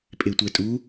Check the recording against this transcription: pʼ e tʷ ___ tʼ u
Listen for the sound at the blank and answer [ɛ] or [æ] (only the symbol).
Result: ɛ